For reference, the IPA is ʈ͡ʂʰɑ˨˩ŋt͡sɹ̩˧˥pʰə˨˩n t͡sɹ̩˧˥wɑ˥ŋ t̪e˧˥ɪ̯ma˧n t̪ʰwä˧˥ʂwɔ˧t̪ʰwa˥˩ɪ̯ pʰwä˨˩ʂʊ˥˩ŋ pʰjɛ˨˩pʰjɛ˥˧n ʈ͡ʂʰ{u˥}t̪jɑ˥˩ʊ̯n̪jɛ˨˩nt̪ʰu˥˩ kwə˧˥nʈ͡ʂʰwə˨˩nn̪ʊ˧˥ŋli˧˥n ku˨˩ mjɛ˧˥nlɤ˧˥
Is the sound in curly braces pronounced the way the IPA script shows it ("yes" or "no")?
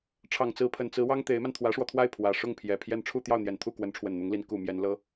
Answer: no